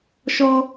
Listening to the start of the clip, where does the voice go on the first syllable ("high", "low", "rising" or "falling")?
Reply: high